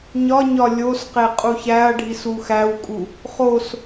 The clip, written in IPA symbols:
ɲɒɲɒ lʲosqe qʼuçæɐ̯ɖʱis uxæwkʼu | χos

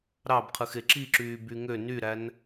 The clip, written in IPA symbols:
ɾɑbqʰɯxe ǁiǁyːby ŋø nyɾæn

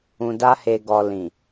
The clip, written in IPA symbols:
ũ˨da˧ he˨ɡɔ˨lĩ˨

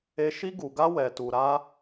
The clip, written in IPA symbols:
e˧ ʃi˧ɡu˨ɡa˧ wɛ˨tu˨ ɾa˧

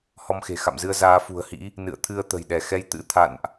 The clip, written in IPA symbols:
hɔ˧mxe̤˨˩xa̰˧˨mzɨ˧ə̯ zaː˨˦fṳ˨˩ə̯hḭ˧˥ | nɨ̰˧˨ə̯t̪ʰɨ˧ə̯t̪ə̤˨˩jɗɛ˧˩ xɛ˨˦jt̪ɨ̰˧˥t̪ʰa̰˧˨nʔ

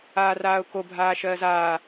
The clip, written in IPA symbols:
aːraːʊ̯kobʱaː ʃɜːzaː

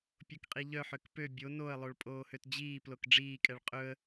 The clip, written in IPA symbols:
pʲokqʼiʎœħøk pø bʲo noə̯lˠoɭ pʼoːhøtd͡ʑiːplok ɖ͡ʐiːkʼɛɭ qʼɵə̯

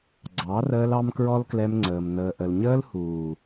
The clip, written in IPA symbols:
ɡ͡ǀɑ˨˦rəː˧l ɑ˦mkɹɔ˦lklɛ˧mŋ͡ǀəː˨m n̪əː˨ʔə˨l ɲəː˧lhuː˨

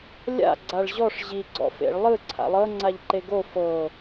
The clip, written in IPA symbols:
lʲa̰ ɡ͡ǀaɭʑɔʂ ʑi ɡ͡ǀɔ̰fḛɭ lˠɯ ǀʰa̰lˠɤ ŋ͡ǀaʎǃeɡo fɤ

